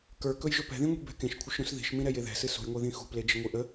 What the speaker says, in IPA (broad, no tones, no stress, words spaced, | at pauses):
kə˞kɵj ʒɵpɛ̤ðĩ ŋʷi̤bɛ̤kẽʃ kʷʰəʃɾũsði̤ʃmĩ ɾɛjeðɛ̤ sɨsṳjŋʷeðĩ xṳpled͡ʒə ŋʷiʔə